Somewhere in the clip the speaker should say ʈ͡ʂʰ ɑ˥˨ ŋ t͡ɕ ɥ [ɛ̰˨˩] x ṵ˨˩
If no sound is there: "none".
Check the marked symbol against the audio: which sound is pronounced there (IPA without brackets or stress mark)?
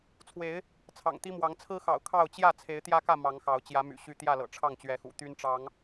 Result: ɛ˨˦